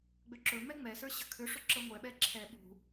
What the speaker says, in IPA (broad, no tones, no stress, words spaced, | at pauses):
ɡ͡bøǁɵmɛ ŋ͡mɛsə˞ ɕə̤kʰʏʂɵ ǁəŋʷɛɓɛ ǁʰɛ ɓṳ